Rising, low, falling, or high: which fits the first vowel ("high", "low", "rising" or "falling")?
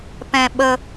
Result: low